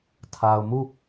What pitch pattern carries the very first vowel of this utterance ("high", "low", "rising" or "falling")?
low